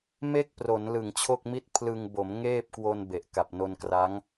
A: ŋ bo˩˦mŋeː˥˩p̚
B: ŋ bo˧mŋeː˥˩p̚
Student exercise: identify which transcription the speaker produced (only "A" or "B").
A